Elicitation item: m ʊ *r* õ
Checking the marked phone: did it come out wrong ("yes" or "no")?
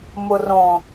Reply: no